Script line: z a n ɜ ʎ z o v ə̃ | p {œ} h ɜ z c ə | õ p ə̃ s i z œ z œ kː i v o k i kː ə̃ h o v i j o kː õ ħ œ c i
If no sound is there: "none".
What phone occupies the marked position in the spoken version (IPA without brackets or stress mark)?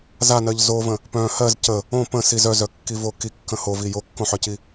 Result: œ̃